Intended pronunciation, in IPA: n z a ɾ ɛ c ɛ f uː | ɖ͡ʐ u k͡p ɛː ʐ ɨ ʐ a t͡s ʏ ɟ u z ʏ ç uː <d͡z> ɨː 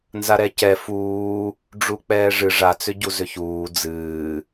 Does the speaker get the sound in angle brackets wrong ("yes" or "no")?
no